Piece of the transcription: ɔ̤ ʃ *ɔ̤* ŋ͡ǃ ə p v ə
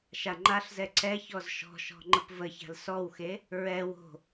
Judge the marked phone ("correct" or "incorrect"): correct